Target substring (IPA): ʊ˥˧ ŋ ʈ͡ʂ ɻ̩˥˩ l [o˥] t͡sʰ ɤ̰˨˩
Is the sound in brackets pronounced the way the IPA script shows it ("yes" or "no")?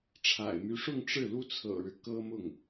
no